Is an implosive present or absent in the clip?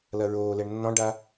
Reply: absent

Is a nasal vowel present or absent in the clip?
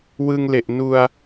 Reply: absent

